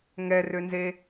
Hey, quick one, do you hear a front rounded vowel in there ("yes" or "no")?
yes